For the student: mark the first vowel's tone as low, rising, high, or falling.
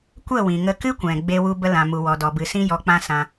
falling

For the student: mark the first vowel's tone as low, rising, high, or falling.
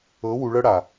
rising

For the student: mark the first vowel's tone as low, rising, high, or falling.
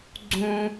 high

